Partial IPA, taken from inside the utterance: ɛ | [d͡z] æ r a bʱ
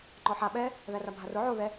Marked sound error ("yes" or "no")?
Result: yes